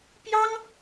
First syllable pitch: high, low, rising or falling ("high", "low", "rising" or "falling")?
high